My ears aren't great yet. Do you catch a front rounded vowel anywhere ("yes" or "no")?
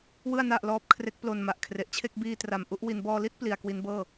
no